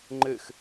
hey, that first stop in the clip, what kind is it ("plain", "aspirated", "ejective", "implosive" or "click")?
click